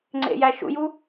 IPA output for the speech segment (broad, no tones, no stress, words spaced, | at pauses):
ŋ͡ǀḛjæʃṵju